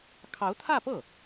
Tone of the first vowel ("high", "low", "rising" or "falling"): rising